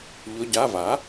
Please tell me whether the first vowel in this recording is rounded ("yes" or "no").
yes